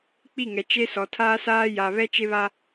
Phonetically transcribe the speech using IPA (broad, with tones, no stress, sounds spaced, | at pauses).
k͡p i˦˨ ŋ ɛ˨ t͡ʃ e˦ s ɔ˨ tʰ aː˦ s aː˦ j a˨ β ɛ˦ t͡ʃ e˦ β a˦